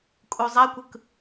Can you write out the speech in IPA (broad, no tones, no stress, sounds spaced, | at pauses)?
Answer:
kʼ u zˤ æ kʷ ɯ k